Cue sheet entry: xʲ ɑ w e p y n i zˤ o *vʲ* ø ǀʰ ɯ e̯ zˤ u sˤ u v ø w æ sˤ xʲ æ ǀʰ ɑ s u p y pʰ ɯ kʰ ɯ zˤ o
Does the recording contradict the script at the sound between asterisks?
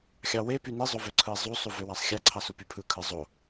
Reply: yes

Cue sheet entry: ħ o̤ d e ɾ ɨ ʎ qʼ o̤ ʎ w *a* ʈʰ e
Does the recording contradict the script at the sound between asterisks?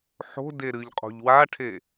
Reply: no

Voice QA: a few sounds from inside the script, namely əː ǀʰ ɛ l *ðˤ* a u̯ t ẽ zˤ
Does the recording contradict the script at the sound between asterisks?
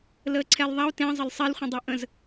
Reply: no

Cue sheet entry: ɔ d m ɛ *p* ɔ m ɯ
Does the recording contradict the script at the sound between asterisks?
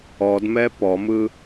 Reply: no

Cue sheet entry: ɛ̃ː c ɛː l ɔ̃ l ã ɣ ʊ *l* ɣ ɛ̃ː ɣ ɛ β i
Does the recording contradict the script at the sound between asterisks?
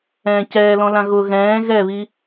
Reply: yes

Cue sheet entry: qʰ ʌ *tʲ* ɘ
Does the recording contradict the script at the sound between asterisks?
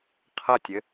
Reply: no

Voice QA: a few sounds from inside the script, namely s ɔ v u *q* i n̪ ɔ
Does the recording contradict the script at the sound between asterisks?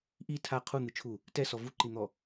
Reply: yes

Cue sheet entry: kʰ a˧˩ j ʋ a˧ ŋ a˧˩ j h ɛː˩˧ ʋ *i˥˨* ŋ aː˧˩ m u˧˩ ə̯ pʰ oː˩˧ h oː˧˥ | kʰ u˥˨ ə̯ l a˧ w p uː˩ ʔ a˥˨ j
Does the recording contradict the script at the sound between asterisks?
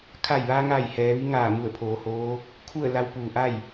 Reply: yes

